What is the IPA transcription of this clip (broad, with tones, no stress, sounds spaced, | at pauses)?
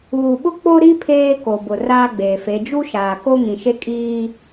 uː˨ ɓ ʊ˦ k͡p o˦ ɾ i˦ pʰ eː˦ k o˨ b ʊ˨ r aː˦ ɡ͡b eː˨ f e˨˦ d͡ʒ u˦ ʃ aː˨ k o˦ ŋ ĩ˨ ʃ e˦ kʼ iː˦